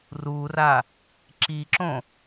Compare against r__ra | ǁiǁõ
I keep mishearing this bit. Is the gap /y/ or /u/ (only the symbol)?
u